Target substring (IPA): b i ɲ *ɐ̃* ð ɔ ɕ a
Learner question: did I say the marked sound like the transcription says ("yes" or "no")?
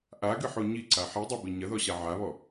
no